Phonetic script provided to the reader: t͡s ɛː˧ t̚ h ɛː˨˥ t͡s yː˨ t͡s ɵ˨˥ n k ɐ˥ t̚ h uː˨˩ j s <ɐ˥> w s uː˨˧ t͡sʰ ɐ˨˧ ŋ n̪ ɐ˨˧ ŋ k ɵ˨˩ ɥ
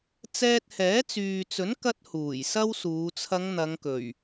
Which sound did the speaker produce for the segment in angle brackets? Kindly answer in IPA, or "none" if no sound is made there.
ɐ˥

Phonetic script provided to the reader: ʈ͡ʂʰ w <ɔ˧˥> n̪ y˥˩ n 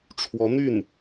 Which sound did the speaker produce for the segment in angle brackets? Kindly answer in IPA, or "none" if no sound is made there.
ɔ˧˥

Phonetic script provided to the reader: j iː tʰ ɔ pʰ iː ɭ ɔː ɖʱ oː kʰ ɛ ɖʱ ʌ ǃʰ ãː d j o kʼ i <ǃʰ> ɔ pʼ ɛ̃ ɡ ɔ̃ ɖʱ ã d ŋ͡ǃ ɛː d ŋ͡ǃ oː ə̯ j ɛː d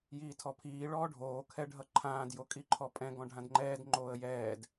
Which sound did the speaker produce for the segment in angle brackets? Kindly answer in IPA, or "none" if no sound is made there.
ǃʰ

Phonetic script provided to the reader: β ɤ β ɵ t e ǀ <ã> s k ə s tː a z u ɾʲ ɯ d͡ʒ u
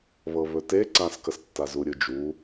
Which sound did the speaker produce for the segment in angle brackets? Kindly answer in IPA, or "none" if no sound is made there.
ã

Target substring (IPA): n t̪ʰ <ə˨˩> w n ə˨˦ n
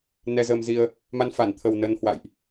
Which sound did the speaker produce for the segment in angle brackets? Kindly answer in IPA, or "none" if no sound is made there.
ə˨˩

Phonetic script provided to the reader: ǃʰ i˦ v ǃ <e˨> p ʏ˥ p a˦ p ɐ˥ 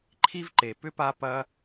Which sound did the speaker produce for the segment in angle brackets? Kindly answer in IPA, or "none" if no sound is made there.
e˨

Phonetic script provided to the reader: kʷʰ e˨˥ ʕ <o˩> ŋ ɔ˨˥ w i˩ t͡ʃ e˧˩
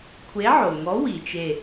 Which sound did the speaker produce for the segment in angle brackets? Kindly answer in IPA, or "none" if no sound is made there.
o˩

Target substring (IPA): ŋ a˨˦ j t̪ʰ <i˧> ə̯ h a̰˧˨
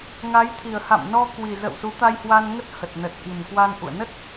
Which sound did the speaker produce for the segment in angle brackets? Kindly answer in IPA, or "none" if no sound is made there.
i˨˩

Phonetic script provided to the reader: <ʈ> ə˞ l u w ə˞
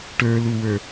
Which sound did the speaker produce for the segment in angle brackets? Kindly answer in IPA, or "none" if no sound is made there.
ʈ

